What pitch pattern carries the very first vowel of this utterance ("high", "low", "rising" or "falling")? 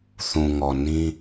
low